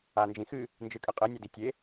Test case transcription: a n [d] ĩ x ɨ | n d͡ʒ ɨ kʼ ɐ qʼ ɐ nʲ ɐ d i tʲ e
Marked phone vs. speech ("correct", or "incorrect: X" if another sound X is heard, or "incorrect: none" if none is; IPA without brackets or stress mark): incorrect: d͡ʒ